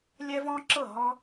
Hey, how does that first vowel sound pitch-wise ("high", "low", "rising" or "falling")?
high